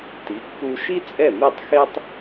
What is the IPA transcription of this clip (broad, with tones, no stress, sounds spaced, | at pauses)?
t i˩˥ kː u˧ ʃ i˥ t͡sʼ ɛ˥˩ m i˥˩ tˤ x e˥ tˤ